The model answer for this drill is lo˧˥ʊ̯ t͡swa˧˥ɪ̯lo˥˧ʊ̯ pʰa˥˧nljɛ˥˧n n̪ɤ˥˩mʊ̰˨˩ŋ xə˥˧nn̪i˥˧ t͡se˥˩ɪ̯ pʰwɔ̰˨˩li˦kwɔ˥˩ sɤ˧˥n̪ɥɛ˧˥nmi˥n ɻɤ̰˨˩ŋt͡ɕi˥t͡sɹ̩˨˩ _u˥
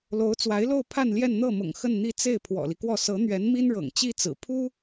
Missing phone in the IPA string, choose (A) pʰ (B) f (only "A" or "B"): A